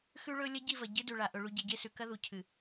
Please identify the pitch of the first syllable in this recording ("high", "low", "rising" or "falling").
high